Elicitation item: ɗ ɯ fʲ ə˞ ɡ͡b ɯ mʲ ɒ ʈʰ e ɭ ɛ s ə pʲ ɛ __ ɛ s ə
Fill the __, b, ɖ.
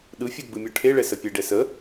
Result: ɖ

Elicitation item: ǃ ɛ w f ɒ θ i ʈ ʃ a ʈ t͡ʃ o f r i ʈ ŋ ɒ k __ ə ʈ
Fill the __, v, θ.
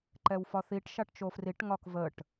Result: v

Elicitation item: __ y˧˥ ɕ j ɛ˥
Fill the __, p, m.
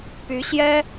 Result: p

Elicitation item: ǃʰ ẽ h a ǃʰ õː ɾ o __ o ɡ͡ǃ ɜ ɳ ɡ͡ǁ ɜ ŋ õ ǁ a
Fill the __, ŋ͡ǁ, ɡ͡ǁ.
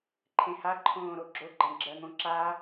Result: ɡ͡ǁ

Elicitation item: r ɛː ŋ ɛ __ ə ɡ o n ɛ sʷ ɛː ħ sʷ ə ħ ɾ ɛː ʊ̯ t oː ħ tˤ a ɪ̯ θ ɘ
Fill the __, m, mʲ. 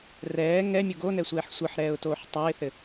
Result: mʲ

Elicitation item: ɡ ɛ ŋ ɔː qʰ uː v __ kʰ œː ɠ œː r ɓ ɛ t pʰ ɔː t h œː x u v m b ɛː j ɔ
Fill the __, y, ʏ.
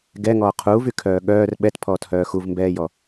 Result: y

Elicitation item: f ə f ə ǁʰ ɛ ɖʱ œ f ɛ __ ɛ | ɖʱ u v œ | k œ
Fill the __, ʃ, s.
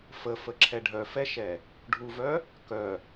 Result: ʃ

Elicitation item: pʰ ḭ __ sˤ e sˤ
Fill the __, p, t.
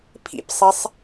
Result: p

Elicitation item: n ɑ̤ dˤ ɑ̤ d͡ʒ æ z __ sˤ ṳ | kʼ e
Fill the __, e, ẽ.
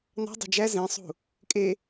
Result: ẽ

